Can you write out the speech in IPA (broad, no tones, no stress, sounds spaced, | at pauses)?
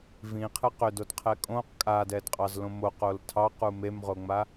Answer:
v ĩ qʰ ɨ q ʏ d o d qʰ ɛ kʼ õ q kʼ a d ɛ d qʼ ɑ z l õ m o q o l tʰ ɑ q u m e m ʁ o ŋ͡m a